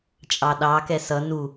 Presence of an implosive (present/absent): present